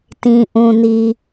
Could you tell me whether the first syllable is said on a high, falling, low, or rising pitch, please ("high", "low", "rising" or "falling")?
low